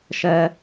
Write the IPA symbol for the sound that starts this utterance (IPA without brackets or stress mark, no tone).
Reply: ʃ